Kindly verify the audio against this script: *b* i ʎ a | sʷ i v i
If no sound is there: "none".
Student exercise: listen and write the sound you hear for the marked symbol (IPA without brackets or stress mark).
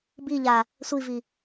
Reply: b